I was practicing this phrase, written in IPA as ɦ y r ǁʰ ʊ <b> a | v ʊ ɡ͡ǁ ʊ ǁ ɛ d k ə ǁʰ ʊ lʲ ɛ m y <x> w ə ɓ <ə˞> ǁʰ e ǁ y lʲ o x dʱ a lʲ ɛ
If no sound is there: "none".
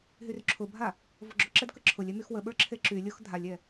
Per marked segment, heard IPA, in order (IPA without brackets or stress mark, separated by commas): bʱ, x, ə˞